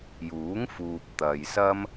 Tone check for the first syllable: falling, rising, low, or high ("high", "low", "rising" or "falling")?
rising